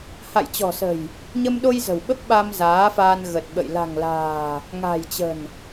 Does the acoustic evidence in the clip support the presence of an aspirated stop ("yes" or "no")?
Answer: no